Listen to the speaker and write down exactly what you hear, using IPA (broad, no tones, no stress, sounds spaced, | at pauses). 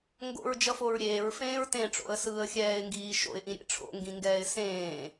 ŋ ɡ o̰ ɹ d͡ʒ ʌ f o ɹ ɾʲ eː ɹ f ẽː ɹ t ẽ ʈ͡ʂ o̰ ə̯ s ɯː ə̯ xʲ ɛː ɪ̯ ŋ ɡ iː ʃ o̰ ɪ̯ ʔ ĩ ɾʲ ḛ ʈ͡ʂʰ o̰ ŋ ɡ ĩ ŋ ɡ ɛː ɪ̯ s ẽː